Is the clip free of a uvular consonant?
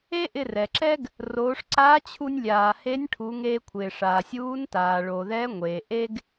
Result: yes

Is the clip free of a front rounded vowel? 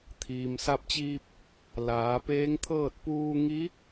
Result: yes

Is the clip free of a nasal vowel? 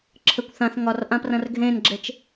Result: no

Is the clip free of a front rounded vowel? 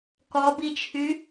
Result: no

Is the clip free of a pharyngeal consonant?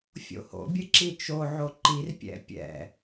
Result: no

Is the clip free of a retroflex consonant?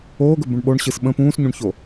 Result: no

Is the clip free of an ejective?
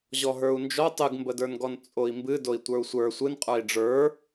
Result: no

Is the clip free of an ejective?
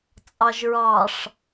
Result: no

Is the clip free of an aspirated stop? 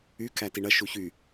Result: no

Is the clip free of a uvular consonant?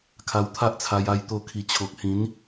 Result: yes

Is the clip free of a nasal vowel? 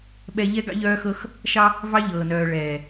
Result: yes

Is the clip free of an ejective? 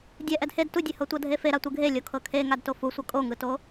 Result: no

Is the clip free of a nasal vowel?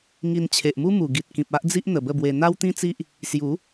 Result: no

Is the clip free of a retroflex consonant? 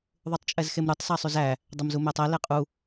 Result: yes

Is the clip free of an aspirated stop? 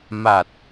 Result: yes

